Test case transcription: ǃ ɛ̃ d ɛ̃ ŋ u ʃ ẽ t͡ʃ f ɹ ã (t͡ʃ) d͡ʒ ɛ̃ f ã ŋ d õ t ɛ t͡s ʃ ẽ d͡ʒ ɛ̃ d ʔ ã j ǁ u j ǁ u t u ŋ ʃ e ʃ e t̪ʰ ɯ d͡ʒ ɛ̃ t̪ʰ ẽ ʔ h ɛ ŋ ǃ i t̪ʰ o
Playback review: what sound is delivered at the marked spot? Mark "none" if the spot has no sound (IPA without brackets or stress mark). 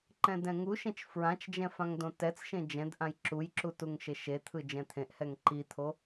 t͡ʃ